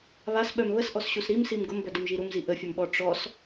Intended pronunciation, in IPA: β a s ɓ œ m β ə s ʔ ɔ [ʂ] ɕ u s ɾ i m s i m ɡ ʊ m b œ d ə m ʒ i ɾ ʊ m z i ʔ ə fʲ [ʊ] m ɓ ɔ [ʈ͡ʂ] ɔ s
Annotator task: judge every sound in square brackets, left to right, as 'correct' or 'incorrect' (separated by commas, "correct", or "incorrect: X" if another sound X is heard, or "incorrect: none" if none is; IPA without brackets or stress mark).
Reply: incorrect: s, incorrect: ə, correct